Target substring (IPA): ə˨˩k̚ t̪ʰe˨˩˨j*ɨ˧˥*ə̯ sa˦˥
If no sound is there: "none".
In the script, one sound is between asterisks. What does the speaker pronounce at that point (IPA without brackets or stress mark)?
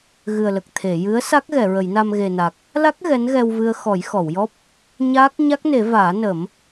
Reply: ɨ˧˥